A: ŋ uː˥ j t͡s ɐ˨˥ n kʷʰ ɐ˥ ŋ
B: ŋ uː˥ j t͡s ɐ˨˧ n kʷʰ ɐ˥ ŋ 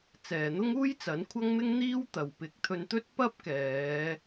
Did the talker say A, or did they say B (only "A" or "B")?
A